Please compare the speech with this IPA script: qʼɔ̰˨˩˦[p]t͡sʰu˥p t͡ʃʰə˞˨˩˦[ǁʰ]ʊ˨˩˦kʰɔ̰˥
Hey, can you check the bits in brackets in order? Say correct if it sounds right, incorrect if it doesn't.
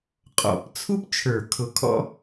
correct, incorrect: kʰ

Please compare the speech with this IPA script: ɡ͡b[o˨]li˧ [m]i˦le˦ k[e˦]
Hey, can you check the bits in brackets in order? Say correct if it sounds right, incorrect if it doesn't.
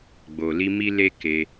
correct, correct, incorrect: e˧

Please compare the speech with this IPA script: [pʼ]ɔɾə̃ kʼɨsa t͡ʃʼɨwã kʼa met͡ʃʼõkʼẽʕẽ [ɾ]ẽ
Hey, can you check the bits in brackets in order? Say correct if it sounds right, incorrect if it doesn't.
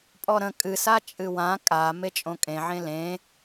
correct, incorrect: l

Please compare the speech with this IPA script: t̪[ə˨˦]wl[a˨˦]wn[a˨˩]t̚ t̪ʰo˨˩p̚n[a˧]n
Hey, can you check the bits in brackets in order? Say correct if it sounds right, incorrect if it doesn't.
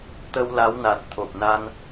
incorrect: ə˧, correct, correct, correct

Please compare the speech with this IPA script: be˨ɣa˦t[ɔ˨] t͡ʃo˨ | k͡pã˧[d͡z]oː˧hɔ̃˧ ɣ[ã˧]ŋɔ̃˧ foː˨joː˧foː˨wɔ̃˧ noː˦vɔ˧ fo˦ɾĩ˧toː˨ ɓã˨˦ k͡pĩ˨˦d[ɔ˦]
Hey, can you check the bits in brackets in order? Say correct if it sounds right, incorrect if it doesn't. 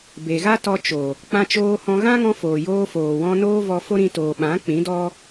incorrect: ɔ˧, incorrect: t͡ʃ, incorrect: ã˦, correct

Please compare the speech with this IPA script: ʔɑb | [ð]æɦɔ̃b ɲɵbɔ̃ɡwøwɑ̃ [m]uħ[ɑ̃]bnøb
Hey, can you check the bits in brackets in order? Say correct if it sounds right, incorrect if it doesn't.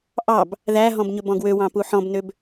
correct, incorrect: p, incorrect: ɔ̃

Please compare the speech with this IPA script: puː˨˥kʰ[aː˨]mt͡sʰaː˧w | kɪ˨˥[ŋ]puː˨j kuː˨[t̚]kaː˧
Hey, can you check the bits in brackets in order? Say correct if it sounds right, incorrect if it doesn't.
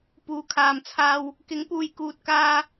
correct, correct, correct

